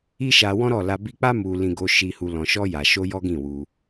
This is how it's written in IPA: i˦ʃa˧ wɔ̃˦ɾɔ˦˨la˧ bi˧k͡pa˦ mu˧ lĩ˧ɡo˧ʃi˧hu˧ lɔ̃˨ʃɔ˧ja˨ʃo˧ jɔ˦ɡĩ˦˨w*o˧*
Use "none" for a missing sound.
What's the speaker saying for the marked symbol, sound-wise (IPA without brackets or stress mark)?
u˧